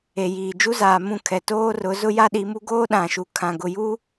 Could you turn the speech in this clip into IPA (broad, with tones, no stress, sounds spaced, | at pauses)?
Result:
e˨ j iː˨ d͡ʒ u˦ z aː˨ m ũ˦˨ kʰ ɛ˨ t oː˦ r ʊ˨˦ z ʊ˦ j a˦ ɗ i˨˦ m u˦ ɡ oː˦ ɗ ã˨ ʃ u˨ kʰ ã˨ ɡ ʊ˨ j u˦